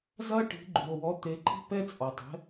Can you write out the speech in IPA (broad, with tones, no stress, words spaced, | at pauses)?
zɐ˥ʈi̤˩˥ɡ͡ǃu˩o̯ wɔ˩˥t̪e˩˥ǃi̤˥ pɛ˥t͡sʼɔ˩tˤɛ̤˩˥